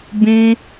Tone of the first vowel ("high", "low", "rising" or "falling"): high